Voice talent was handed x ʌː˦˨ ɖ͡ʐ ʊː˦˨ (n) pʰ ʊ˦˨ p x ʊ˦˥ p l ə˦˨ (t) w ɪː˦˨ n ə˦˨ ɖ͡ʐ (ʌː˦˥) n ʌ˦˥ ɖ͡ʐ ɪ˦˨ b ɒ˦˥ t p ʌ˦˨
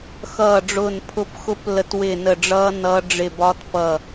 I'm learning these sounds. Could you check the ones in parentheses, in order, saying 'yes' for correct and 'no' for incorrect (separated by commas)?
yes, yes, yes